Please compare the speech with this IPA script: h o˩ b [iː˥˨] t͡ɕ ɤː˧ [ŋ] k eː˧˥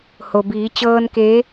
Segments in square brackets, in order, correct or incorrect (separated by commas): incorrect, incorrect